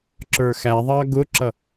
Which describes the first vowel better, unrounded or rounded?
unrounded